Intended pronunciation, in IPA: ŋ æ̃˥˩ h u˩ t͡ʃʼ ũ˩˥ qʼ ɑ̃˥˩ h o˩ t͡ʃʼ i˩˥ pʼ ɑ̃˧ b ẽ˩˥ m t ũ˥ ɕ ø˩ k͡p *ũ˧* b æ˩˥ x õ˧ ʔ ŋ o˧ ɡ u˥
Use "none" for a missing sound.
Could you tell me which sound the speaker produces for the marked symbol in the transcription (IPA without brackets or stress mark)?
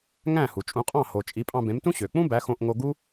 ũ˥